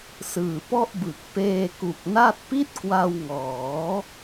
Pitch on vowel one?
low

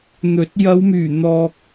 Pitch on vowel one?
rising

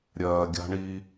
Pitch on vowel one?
low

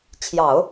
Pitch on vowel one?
low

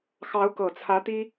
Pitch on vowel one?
rising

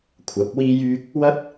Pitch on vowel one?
rising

